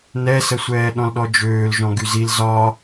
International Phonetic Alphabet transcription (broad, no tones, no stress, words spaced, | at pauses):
nɛsəsʷɛː ɗɔ̃lɗɔd͡ʒøːlʒɔ̃ ɡyzil zɒ